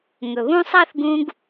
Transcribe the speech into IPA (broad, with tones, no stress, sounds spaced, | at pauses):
ŋ ɵ˩ β ũ˦ sˤ a˥ θ ɡ ũ˦ ɡ